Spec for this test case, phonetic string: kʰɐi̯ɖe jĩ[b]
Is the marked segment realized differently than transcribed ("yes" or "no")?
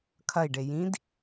yes